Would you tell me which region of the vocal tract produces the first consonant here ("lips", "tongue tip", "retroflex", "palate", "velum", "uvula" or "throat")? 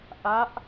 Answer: throat